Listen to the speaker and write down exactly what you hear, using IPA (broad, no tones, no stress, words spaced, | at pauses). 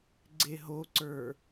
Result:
ɡ͡ǀeɦoǀə˞